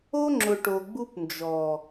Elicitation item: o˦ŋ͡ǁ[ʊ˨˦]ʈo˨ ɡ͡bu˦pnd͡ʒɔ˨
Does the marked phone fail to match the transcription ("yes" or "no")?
yes